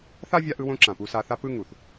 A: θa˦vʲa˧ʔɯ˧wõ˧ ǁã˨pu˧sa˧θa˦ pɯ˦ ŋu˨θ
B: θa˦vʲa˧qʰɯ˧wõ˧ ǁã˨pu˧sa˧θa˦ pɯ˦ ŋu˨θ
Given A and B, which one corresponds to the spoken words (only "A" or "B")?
A